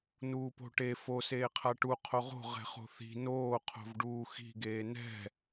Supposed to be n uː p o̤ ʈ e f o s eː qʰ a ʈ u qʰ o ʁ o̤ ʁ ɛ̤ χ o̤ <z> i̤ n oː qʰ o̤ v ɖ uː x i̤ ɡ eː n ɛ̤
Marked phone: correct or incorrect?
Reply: incorrect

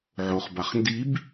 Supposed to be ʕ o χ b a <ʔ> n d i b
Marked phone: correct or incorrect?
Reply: incorrect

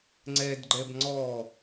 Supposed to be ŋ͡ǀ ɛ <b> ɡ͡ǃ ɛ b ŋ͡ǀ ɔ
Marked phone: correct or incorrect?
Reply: incorrect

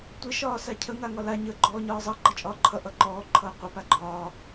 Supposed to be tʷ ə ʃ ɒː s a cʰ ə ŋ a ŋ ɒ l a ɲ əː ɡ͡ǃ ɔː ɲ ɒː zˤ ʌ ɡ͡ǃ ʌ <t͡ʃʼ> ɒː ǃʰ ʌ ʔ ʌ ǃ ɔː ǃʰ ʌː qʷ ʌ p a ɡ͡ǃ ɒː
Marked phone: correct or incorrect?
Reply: correct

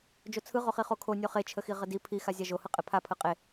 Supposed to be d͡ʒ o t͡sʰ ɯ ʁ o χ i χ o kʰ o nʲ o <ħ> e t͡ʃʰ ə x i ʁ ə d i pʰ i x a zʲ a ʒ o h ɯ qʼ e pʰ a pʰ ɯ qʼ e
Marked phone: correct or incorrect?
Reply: incorrect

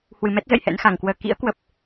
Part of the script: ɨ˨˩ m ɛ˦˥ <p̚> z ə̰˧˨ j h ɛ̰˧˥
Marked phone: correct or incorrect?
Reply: incorrect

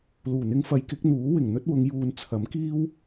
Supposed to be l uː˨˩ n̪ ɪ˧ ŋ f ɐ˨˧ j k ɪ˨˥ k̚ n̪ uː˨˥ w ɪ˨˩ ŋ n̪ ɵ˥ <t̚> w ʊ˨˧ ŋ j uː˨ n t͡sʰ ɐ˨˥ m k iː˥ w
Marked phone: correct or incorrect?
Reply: correct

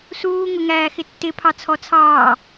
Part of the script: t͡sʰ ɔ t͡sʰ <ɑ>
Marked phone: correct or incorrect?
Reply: incorrect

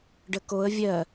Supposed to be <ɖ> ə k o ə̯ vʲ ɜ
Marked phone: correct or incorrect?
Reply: correct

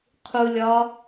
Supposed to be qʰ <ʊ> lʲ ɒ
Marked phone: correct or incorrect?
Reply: incorrect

